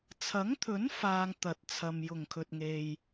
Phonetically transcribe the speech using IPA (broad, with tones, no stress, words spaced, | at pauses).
t͡sʰɐ˨˥ŋt̪ʰɵ˨˥n faː˧ŋ t̪ɐ˨t̚t͡sʰɐ˨m jʊ˨˩ŋkʰɵ˨t̚ ŋe˨j